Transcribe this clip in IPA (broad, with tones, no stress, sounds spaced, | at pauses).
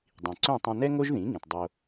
dˤ ĩ˩ ǀ œ̃˥˩ tˤ œ̃˧ n ɛ˥ ŋ o˥ ʒ ð ĩ˩˥ ŋ ĩ˩ t dˤ o˧